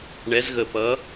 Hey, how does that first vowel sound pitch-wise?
rising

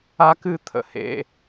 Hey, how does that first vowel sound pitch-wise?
high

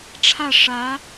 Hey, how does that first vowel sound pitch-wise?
falling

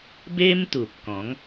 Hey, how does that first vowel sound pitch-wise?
high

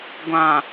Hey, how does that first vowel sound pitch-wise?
low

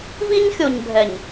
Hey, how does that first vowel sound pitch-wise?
high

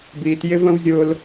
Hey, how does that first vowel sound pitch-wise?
low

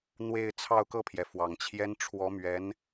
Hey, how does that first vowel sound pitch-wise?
falling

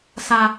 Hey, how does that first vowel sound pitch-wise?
high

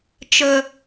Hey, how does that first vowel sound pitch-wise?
high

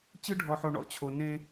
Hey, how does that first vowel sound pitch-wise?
high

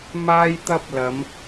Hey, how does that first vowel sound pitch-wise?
high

